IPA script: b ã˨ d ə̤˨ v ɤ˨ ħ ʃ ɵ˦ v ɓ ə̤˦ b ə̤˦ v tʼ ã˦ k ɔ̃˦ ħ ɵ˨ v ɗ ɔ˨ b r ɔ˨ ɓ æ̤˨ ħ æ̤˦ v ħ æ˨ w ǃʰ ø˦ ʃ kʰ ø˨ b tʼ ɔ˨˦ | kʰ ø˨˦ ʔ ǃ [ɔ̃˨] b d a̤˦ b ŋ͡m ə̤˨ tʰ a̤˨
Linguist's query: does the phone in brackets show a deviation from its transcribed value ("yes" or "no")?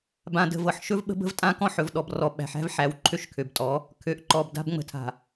yes